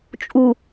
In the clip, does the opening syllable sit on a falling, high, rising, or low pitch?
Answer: low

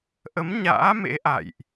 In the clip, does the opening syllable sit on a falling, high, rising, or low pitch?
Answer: rising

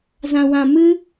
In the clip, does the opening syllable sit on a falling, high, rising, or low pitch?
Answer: low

